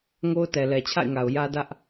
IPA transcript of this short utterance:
ŋo˦ʊ̯tɛ˨ lɛ˨t͡ɕʰa̰˦˨ɪ̯ŋa˨ʊ̯ jä˦dä˦ʔ

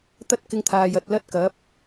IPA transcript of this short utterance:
t̪ɐ˥t̚kɪ˧ŋt̪ʰaː˨j ɐ˨t̚lɐ˥t̚kɐ˨˥p̚

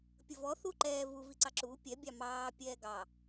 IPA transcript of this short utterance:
pʲəvɔ θuǃɛː vu viǀɑǁuː pʲɛ bʲɑmɑː pʲɛːɡɑ

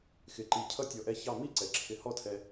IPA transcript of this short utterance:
xɪ˧˩ǃi˧˩ cʰʌ˥tʲɔ˧˩ʔɛ˥˧ çɑ˥˧ mi˥ǀɛ˩˧ǁʰɪ˧˩ hɔ˥˧tʰɛ˧

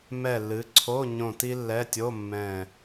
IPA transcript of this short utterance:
mɛ˧˩lːɨ˩˧ǀʰo˧˥˧ ɲõ˧˩ti˥lːɛ˧˥˧ tʲo˧˥˧ mːɛ̃˧˩

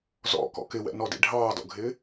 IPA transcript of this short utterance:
zɔ̰kɔ̰ kɪwɛ̰nɔdḭ ɖʱɑːdɔ̰ɡʱɪː

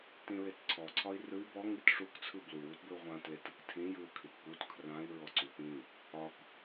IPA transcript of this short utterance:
tĩɹetǀʰɔ ǀʰɒi̯rɯi̯ bɔ ŋitʂuk t͡sʰɯblu wutbɘu̯ʁʷã tletɯktʰĩ jɯu̯kʰitput kʰrãi̯ ɹɔǀupĩ | ɒk

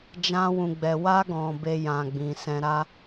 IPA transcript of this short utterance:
d͡ʒã˧wũ˨ɡ͡bɛ˨ wa˧ɡɔ̃˨ be˧jã˨ ɡ͡bĩ˨sɛ̃˧ɾa˦

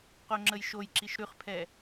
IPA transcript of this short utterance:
qoŋ͡ǁəjʃojǁiʃ ɾʉχpʰɛ

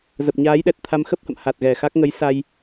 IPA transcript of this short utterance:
zə˨˩p̚ ɲaː˨˦jɗɛ˨˩t̚t̪ʰa˧m xə˦˥p̚hə̰˧˨m ha˨˩t̚ɣɛ˨˩xa˦˥k̚ ŋə˨˦jsa˧j

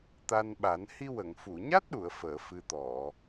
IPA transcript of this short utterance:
t̪a˧nɓa˨˩˦n hi˧wə˨˩˨ŋ fu˨˩˨ɲa˦˥t̚ɗu˨˩˨ə̯ fəː˨˩˨ fɨ˨˩t̪ɔ˨˩˨

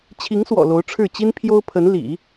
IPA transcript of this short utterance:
t͡ɕʰi˧˥ŋswɔ̰˨˩ lo˧˥ʊ̯ʈ͡ʂʰɻ̩˥˩ t͡ɕi˥npʰjo˥ʊ̯pʰə˧˥n lḭ˨˩˦

